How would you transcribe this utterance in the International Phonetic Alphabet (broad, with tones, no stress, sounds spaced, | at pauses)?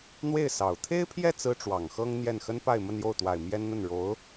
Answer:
n̪ w e˥˩ ɪ̯ s ɑ˨˩ ʊ̯ t̪ʰ e˥ ɪ̯ pʰ j ɛ˥˩ t͡s ɹ̩˥ ʈ͡ʂ w ɑ˨˩ ŋ x ɤ˥ ŋ n̪ j ɛ˥˩ n x ə˥ n p a˥˧ ɪ̯ m ə˥˧ n j o˥˩ ʊ̯ t̪ w a˨˩ ɪ̯ m j ɛ˥ n n̪ ə˥˩ n ɻ o˧˥ ʊ̯